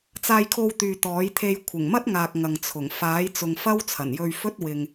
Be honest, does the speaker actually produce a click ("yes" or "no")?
no